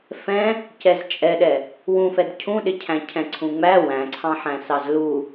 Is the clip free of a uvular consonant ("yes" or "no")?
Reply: yes